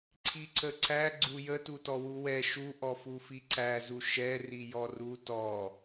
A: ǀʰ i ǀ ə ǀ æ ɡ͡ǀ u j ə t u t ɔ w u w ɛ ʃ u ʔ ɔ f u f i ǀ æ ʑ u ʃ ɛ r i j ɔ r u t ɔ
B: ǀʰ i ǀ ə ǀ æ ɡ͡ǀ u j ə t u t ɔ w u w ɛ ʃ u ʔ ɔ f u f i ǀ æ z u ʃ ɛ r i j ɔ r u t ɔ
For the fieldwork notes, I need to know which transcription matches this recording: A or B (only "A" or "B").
B